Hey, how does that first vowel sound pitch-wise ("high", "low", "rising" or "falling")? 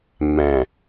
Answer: low